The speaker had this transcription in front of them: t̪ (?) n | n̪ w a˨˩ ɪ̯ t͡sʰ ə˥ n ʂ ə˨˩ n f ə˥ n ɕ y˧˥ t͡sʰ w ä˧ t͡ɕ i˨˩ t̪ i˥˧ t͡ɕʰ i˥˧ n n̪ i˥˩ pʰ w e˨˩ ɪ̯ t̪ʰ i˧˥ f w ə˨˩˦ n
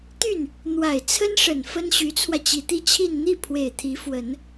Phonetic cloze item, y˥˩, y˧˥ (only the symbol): y˥˩